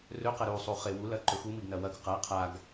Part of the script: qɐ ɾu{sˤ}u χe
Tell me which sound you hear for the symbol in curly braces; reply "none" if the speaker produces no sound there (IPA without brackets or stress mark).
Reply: sˤ